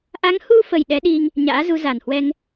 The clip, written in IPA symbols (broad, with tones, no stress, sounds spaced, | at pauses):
ʔ a˨˦ ŋ h u˧ f ə˨˩ j ɗ ɛ˨˦ ɗ i˧ ŋ | ɲ a̰ː˧˥ z u˨˦ z a˨˩ n h w ɛ˧ ŋ